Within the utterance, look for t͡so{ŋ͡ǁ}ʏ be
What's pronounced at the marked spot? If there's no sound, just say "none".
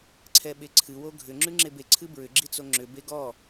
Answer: ŋ͡ǁ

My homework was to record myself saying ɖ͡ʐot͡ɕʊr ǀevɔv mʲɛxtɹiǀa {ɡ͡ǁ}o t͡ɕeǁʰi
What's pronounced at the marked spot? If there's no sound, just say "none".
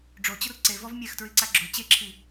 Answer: ɡ͡ǁ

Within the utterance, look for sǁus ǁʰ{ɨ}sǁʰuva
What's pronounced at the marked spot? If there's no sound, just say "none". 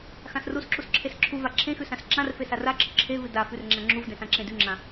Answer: e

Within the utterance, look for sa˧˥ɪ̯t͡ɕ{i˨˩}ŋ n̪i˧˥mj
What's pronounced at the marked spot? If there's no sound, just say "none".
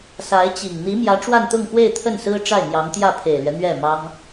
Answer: i˨˩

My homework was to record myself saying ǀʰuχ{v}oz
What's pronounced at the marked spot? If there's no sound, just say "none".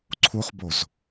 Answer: b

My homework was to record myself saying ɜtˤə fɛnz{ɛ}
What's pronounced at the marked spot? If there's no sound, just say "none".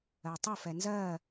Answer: ɜ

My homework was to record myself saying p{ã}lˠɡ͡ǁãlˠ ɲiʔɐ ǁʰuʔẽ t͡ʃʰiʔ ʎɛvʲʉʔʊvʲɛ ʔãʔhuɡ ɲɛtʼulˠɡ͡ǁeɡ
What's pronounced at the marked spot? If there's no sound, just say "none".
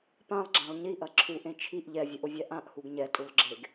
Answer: ã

